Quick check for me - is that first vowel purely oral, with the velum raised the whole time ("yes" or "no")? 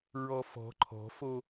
yes